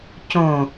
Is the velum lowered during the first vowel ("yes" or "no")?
yes